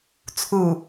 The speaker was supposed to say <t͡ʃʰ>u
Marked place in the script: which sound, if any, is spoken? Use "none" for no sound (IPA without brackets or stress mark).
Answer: t͡sʰ